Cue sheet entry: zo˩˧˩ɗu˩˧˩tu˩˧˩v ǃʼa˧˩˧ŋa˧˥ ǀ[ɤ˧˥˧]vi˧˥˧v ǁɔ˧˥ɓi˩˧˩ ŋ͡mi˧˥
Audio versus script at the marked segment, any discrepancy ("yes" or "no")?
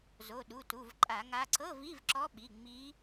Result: no